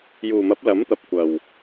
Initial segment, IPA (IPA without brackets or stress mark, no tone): j